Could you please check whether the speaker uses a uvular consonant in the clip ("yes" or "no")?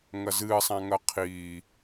yes